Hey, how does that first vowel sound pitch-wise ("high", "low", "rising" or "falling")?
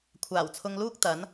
low